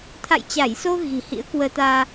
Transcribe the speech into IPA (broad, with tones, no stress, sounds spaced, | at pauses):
t̪ʰ a̰˧˨ j t͡ɕ a˧˩ j s o˧ ɣ i̤˨˩ h ḭ˧˥ ə̯ k w əː˧ t̪ aː˧